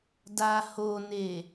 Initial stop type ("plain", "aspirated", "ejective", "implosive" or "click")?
plain